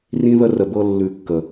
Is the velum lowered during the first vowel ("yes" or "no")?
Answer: yes